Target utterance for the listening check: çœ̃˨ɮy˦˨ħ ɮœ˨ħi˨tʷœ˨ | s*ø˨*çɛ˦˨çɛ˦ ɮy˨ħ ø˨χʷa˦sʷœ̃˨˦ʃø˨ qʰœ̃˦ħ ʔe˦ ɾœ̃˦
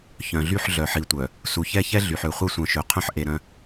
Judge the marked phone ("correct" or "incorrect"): incorrect